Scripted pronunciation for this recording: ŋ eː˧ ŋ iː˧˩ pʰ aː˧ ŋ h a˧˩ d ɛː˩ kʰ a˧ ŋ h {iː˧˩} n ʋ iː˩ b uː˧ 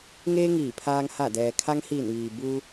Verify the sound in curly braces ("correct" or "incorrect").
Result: correct